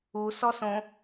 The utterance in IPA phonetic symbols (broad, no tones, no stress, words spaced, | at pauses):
usɔsõ